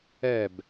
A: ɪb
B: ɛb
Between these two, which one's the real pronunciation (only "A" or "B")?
B